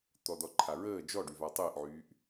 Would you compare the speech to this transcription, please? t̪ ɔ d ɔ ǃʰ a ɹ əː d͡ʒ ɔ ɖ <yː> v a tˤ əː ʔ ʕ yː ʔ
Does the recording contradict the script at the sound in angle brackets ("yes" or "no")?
yes